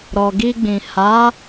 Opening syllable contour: low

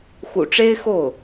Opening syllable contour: low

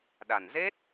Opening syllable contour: low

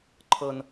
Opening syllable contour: low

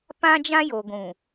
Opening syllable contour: high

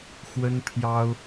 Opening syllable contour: high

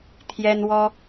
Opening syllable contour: high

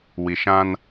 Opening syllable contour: low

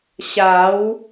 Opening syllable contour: rising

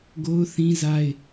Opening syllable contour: high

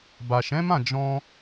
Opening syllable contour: low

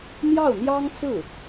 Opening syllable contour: falling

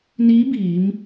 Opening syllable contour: rising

